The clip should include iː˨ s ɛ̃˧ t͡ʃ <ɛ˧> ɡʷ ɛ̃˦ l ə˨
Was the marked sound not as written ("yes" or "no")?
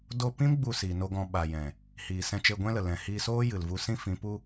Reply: yes